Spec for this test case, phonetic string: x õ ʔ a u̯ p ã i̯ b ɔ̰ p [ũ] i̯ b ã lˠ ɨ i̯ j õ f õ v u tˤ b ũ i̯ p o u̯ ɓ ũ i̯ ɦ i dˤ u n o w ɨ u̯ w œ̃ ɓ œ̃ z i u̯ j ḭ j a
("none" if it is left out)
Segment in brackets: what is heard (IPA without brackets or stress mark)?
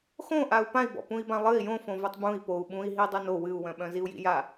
ũ